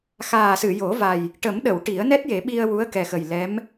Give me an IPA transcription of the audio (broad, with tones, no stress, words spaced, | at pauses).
xaː˨˩sɨ˨˩˨jo˨˩˦va˨˩j | ʈə˨˩˦mɗə˨˩˨w ʈi˨˩˦ə̯nɛ˦˥t̚je˨˩˦ ɓi˧ə̯wu˧˥ə̯kɛ˨˩xə˨˩j lɛ˧˥m